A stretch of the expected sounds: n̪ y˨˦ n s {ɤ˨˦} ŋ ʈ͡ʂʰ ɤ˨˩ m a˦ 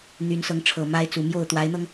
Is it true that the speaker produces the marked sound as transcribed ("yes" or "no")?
yes